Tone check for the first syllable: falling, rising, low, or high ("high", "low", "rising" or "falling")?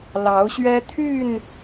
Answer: rising